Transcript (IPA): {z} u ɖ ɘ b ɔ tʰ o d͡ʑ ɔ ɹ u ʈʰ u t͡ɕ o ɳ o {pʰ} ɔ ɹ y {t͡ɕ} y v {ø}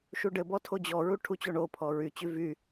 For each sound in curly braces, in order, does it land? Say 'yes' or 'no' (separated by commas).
no, yes, yes, no